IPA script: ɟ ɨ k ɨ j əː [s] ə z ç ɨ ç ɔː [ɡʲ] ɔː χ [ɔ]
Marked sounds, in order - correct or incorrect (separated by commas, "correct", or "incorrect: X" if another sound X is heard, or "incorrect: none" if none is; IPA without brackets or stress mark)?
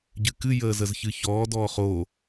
incorrect: z, incorrect: d, incorrect: o